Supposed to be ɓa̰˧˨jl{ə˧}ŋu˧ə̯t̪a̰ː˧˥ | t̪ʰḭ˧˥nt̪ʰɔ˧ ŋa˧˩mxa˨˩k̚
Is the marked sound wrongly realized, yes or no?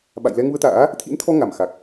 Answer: yes